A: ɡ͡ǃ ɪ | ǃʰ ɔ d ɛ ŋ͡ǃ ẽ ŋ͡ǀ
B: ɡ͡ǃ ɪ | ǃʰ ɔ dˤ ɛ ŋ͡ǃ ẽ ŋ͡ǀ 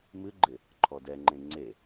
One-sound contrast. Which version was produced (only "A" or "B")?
A